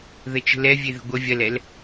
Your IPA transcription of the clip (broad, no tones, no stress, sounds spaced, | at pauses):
ð ə t͡ʃ ə̤ l ɛ vʲ e ð ə̤ ɡʷ ɐ vʲ ɐ l ɛ l